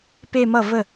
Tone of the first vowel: falling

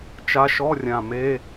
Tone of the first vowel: rising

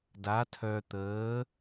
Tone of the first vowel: rising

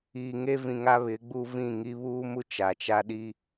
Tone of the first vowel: low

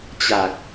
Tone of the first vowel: low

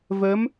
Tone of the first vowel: rising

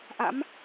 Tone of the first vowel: rising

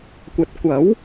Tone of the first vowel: rising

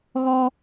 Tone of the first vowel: high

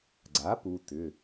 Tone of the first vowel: rising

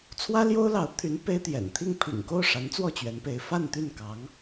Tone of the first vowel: high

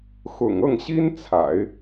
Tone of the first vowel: low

